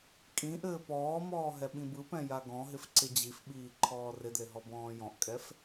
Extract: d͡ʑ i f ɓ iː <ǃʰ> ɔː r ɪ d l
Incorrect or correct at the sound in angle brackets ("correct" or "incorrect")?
correct